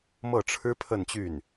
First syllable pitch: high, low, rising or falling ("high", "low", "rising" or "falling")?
falling